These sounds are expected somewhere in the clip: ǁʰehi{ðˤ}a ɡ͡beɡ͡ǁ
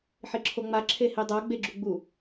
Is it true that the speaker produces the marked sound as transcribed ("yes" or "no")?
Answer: no